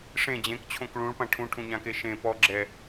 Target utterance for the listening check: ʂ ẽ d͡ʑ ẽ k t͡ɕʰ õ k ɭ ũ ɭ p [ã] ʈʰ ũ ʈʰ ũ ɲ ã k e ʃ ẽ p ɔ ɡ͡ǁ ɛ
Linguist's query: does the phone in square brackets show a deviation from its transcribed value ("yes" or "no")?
no